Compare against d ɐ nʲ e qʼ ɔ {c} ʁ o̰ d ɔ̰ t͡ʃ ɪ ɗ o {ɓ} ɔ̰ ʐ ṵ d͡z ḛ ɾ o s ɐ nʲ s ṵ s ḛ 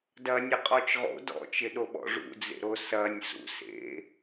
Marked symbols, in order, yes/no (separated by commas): no, yes